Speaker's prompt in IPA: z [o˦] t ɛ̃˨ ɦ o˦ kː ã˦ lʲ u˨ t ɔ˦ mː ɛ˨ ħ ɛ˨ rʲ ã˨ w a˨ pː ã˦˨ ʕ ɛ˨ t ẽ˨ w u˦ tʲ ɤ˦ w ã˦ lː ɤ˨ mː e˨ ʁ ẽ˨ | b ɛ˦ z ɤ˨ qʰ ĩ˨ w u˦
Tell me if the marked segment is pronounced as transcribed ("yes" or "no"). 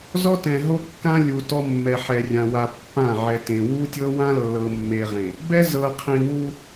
no